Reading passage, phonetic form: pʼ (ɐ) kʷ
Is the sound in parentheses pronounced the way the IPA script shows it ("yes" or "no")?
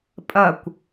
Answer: yes